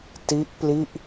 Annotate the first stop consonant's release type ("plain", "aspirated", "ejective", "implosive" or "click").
plain